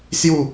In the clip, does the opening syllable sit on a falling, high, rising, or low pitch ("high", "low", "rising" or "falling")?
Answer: falling